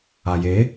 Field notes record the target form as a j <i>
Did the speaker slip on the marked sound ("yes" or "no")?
yes